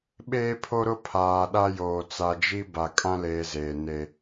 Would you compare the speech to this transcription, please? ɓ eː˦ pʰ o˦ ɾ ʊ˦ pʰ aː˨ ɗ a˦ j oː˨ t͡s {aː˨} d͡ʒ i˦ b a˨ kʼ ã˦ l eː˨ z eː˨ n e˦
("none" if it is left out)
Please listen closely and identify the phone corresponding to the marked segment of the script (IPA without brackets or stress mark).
a˨